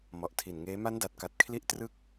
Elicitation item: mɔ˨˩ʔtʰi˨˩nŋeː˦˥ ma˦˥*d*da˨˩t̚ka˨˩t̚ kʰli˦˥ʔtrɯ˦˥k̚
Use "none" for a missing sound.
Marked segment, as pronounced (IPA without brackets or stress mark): n